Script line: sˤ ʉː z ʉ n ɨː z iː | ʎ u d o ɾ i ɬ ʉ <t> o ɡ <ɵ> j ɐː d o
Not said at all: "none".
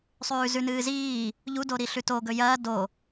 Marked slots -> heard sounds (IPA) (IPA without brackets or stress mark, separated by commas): t, ɵ